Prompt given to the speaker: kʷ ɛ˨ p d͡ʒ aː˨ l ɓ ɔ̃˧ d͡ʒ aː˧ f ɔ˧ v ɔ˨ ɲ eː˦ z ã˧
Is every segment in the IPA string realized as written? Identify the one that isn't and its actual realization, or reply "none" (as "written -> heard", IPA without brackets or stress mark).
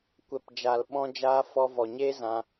none